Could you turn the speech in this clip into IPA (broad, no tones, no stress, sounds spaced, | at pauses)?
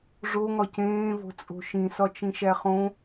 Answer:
ʐ o ŋ ɒ c ẽː v o̤ t͡sʼ o̤ ʃ ĩ s ɒ t͡ʃ ĩ ʃ æ χ õ